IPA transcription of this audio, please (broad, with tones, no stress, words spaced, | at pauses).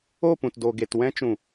o˦˨pũ˨tdo˨ɡe˨t wɛ̃˧t͡ʃũ˨